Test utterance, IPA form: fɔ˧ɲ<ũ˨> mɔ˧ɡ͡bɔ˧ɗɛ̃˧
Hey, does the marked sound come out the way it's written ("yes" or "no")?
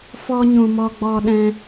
yes